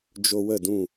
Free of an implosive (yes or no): yes